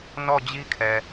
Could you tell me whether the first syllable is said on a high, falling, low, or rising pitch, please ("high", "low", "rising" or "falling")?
falling